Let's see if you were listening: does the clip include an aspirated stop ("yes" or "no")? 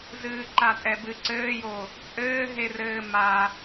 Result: no